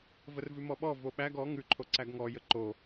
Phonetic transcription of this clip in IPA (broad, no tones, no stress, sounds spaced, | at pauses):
v ə r v ʉ m ɔ ɓ ɔ v o ɓ æ ɡ ɔ ŋ ʉ ǃʰ o ǀ æ ɡ ŋ ɔ j ə ǃ o